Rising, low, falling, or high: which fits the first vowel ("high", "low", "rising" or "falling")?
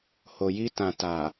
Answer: low